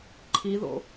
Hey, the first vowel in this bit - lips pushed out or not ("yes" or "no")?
no